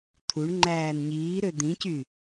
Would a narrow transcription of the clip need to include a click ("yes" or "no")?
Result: yes